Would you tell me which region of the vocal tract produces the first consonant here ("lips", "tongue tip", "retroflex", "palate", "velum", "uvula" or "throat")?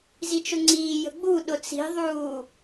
tongue tip